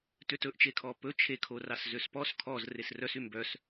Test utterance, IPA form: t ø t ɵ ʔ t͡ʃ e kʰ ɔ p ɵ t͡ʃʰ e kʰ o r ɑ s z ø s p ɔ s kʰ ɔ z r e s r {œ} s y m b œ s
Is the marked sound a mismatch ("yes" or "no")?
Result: no